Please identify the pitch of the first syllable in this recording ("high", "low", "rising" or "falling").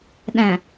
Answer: low